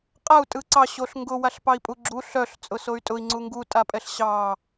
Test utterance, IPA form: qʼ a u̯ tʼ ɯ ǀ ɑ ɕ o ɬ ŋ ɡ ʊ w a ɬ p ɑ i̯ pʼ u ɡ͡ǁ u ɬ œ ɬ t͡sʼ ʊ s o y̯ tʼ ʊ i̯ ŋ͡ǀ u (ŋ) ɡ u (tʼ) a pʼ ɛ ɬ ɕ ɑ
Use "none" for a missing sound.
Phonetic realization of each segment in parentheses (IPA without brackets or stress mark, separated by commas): ŋ, tʼ